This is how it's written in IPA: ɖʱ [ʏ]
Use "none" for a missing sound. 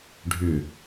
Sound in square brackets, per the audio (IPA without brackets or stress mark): ʏ